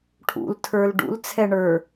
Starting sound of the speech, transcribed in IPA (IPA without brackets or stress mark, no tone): ʈʰ